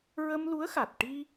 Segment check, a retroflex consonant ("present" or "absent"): present